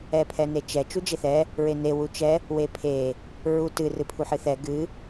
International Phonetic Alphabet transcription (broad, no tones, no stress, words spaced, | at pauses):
ɛpʰɛnet͡ʃɛ t͡ʃud͡ʒeθɛ | ɹene wut͡ʃɛ | wepʰe | ɹutɨ rɨpʰuħɨθɛ ɡɨ